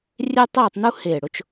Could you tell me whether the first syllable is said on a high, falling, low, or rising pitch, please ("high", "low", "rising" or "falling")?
high